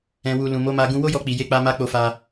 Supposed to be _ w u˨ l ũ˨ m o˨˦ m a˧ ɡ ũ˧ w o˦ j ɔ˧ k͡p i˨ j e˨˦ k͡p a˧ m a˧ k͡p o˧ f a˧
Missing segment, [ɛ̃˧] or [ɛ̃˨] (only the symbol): ɛ̃˨